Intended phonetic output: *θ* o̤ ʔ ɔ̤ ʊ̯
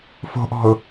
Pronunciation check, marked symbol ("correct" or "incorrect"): incorrect